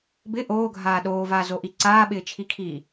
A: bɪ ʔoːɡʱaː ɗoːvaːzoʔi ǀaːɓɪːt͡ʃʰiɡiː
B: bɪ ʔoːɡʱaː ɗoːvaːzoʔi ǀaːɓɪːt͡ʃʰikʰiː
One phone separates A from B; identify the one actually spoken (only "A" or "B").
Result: B